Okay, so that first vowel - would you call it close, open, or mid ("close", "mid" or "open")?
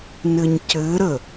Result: mid